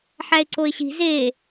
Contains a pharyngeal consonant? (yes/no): yes